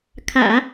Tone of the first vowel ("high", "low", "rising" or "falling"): low